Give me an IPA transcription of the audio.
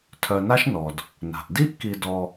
tʰ œ˨ n a˦ ʃ n ɔ˩ d | n a̤˩ ʔ d i˥ ʔ k i˨ d ɔ˨

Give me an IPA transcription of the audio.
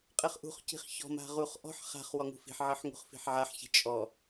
qʼ ɘ χ ʔ ṳ χ c i̤ χ ç ɔ̤ m a̤ ʁ u χ ʔ ɔ̤ ħ χ a̤ χ w ɔ ŋ ṳ f i̤ ħ ʕ ɘ ħ ŋ ṳ χ f i̤ ħ ʕ a ħ ç i̤ t͡ʃʼ ɔ

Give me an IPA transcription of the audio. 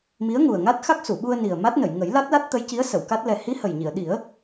m i˧˥ ə̯ ŋ u˨˩ ə̯ ŋ a˦˥ t̚ x a˦˥ k̚ s u˨˩˨ ɓ u˧ ə̯ n i˨˩ ə̯ m a˦˥ t̚ n ə˨˩˨ j ŋ ə˨˩˦ j l a˦˥ t̚ l a˦˥ t̚ t̪ ə˧˥ j c i˧˥ ə̯ s ə˨˩˨ w k a˦˥ t̚ l ɛ˨˩ h i˧˥ h ə˨˩ j ɲ i˨˩˨ ə̯ ɗ i˨˩˦ ə̯

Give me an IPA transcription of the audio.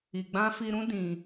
i˨ ɡ͡b ã˧ f i˧ ɾ ũ˦ d ĩ˧

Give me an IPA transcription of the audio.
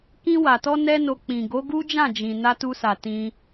k ĩ˧ w a˨ t ɔ˧ n ɛ˦ n o˧ k͡p ĩ˨ ɡ o˨˦ ɡ u˦ d͡ʒ ã˦˨ d͡ʒ ĩ˨ n a˧ t u˧ s a˨ t ĩ˧

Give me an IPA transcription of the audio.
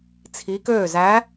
t͡sʰ i˨˦ k øː˧˩ z æ˨˦

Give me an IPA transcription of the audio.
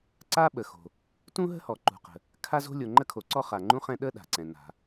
ǀ a˥ ɓ ə˩ x o̤˩ | t ũ˥ ɦ ə̤˥ h ɔ˩ ǃ ṳ˩ q ə̤˩ | kʰ a˥ z o̤˥ lʲ o˩ ŋ͡ǃ ə˥ kʰ o˩ ǀ ɔ˥ χ a˩ ŋ͡ǃ ũ˥ χ ɛ̃˥ ɗ ə˥ ɗ a̤˩ ǀ ɛ̃˩ n a̤˩

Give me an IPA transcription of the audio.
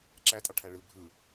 ǁ æ tʼ ɑ ʈʰ æ ɭ ɯ bʱ ɯ

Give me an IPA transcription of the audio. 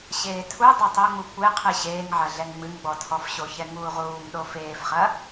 ɕ eː tʰ u dˤ o tˤ o ŋ͡m u kʷ e qʰ ɨ ɕ eː ŋ ʕ ɐ ɮ ɛ ŋ ŋ͡m ɨ ŋ ɡ͡b ɔ tʰ ɔ f ɕ o ç ɛ ŋ uː ʁ uː m ɗ o f eː f χ ɐ

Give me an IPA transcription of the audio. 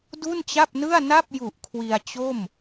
d u˥˩ n t͡ɕ a˥˩ p̚ n ɯ˥˩ a̯ n a˥˩ p̚ j u˨˩ ʔ kʰ w i˧ a̯ t͡ɕ o˥˩ m

